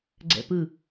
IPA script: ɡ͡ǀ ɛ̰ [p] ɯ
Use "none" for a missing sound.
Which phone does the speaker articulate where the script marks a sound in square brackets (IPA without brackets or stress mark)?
p